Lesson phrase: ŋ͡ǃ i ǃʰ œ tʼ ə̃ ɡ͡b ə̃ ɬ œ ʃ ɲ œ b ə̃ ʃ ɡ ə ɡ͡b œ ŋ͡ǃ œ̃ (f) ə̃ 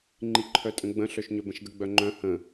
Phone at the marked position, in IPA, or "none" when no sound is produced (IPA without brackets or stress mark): h